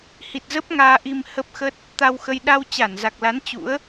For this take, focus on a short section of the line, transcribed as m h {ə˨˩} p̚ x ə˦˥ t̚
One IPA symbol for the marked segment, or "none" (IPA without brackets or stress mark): ə˦˥